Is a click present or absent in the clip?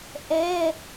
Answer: absent